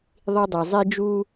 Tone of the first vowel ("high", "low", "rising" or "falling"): high